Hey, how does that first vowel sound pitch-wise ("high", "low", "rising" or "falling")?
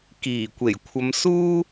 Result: low